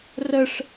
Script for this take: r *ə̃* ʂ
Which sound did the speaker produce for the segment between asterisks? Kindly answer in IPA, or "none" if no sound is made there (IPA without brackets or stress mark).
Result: ə